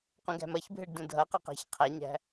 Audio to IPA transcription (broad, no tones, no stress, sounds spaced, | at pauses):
q ũ ɡ æ̤ m ʌ ç bʱ e ɖ d ũ dʱ ʌ q ʌ q æ̤ ç qʰ æ ɲ æ̤